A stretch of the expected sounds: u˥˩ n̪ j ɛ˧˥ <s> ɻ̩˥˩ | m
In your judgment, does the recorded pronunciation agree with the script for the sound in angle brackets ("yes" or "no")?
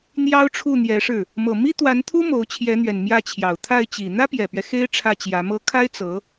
no